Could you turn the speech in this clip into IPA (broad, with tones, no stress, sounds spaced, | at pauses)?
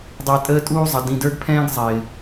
dˤ ɛ˨ tʼ əː˦ tʼ uː˦ zˤ ʌ˨ d ĩ˨ d ə˞˦ ɡ pʰ ɛ̃ː˦ ɡ zˤ ɪː˨